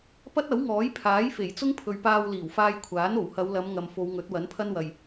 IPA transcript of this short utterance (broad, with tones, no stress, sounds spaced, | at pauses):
p ɐ˥ t̚ ɐ˨˥ w ŋ ɔː˨˥ j pʰ aː˨˥ j f e˨˩ j t͡s ʊ˥ ŋ pʰ ɵ˨ ɥ p aː˧ w l iː˨˩ w f aː˧ j kʷʰ aː˨˥ n o˨˩ w h ɐ˨˧ w l ɐ˨˧ m ŋ ɐ˨ m f o˨˧ w ŋ ɵ˨˥ t̚ w ɐ˨˥ n pʰ ɐ˥ n w ɐ˨ j